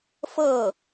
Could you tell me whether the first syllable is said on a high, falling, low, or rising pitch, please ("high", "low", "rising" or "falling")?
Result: falling